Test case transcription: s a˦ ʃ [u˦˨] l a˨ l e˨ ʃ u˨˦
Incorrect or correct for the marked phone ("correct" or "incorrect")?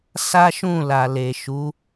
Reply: incorrect